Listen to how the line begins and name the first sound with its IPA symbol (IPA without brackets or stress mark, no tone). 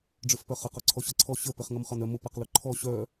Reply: ɖ͡ʐ